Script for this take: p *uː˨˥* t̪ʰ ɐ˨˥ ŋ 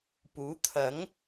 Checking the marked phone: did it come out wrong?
no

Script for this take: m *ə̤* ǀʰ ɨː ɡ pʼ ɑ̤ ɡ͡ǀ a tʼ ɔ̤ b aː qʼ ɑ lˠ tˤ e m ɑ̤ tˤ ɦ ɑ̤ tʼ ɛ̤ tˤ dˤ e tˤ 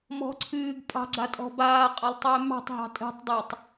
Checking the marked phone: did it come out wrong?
yes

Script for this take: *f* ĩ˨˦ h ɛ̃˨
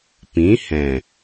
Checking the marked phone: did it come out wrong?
yes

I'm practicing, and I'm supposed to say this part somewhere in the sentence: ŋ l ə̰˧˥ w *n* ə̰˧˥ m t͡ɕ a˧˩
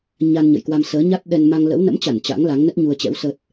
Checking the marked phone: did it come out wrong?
no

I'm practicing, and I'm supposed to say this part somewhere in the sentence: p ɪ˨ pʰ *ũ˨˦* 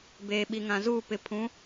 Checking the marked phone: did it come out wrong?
no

